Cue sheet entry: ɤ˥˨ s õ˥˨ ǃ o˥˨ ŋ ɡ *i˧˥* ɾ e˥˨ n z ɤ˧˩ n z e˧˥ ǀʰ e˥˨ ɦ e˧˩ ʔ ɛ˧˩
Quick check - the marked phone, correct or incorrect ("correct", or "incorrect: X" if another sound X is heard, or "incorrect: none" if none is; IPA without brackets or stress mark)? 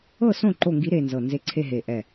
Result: correct